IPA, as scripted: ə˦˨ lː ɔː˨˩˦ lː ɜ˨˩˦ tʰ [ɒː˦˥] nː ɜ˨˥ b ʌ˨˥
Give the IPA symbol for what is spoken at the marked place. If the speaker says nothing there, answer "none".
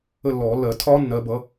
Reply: ɒː˦˥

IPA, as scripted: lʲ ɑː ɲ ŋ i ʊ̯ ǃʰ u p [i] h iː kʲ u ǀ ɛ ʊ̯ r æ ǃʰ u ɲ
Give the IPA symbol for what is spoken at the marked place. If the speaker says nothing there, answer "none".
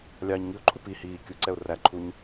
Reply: i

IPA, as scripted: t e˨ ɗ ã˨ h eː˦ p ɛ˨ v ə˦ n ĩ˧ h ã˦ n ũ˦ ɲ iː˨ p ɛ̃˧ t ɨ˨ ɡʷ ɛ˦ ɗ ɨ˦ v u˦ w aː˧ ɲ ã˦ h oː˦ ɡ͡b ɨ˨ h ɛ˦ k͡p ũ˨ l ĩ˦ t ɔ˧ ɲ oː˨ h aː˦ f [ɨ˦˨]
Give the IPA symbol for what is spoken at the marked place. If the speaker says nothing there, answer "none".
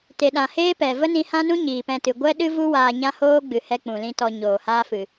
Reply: ɨ˨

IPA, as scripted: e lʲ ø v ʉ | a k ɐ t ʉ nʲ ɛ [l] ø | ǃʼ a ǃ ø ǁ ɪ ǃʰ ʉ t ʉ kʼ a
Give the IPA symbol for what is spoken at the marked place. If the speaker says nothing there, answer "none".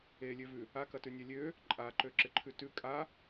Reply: lʲ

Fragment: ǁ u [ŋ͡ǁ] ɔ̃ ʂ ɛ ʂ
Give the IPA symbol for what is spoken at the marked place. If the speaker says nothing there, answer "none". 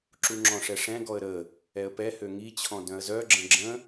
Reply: ŋ͡ǁ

